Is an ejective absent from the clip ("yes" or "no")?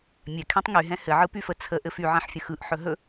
yes